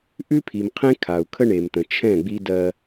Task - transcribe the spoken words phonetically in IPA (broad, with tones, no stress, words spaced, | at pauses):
ʔʉ˦pʰi˨mqʰẽ˦ kʰa˨u̯kʰə˦ɳe˨mt̪ə̃˨ t͡ʃʰɛ̃˦˨ɡ͡bi˦ dɜ˦